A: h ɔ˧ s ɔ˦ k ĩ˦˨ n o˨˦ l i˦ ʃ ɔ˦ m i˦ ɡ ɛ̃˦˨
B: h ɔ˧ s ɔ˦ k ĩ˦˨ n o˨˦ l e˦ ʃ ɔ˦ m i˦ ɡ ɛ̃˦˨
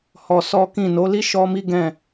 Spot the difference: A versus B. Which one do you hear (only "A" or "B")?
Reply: A